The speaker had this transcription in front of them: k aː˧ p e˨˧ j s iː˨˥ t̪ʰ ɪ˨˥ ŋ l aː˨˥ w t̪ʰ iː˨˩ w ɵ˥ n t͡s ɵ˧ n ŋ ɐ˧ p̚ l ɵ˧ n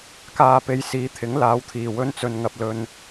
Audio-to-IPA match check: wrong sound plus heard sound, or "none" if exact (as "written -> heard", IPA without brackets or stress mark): none